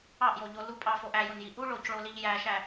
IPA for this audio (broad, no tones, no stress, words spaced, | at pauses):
ɑʔjoʎo lu pʼɑfo ʔæjonji ʔu ɭocɭoliʎ jæʃæ